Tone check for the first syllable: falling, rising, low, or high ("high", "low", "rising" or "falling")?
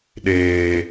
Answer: high